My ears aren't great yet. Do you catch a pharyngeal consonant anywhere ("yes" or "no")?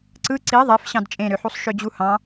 yes